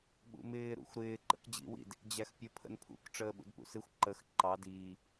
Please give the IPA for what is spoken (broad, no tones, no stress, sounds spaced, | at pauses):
ɓ ṵ m ɪː ɾ ṵ xʷ ɾ ɪː ǃ ə̰ k d͡ʑ ḭ w ḭ d | d͡ʑ æ x pʲ ə pʰ ə̰ n pʰ ṵ k ʈ͡ʂ əː ɓ ṵ d p ṵ s ɪ xʷ ǃ ə x ǃ ɑ d iː